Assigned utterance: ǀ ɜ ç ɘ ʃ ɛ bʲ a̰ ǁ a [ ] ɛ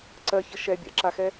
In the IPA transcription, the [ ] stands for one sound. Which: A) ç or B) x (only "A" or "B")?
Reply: B